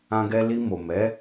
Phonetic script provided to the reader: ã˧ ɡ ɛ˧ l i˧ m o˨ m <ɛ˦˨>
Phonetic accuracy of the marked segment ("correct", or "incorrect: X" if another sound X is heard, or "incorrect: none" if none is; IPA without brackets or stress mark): incorrect: ɛ˨˦